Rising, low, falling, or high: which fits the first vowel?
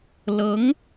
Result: rising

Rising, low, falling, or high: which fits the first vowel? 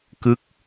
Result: falling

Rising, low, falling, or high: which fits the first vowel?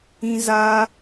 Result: high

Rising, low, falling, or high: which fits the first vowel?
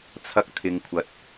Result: high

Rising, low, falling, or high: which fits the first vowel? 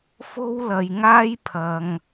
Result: high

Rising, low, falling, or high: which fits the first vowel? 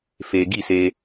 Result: low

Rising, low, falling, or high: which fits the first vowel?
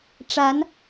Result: rising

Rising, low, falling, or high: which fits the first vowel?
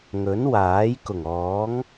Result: rising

